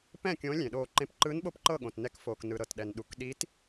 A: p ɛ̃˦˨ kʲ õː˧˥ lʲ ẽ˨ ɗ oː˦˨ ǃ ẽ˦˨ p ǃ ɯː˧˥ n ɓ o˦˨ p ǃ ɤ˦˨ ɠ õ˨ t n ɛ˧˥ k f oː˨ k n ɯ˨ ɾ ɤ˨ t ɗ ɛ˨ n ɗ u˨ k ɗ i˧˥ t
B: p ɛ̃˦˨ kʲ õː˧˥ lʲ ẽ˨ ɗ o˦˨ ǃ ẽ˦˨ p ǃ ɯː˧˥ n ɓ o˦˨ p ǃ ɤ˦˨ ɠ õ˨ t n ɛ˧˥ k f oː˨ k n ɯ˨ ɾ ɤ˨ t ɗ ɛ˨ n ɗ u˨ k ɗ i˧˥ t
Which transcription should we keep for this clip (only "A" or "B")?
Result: A